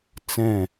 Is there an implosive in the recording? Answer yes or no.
no